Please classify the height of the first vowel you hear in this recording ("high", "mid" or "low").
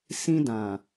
high